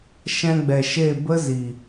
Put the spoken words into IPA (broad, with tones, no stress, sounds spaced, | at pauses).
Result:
ʃ ɛ̃˧ ɡ͡b ɛ˨ ʃ e˦˨ b ə˦ z i˨